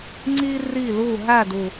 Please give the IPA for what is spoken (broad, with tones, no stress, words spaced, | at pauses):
ŋ͡ǀiː˥ riː˥˨luː˥˨ ɦæ˥˨du˨˩